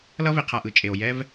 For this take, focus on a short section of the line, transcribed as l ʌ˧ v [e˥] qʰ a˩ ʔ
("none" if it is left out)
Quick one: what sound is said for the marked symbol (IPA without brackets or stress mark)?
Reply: e˩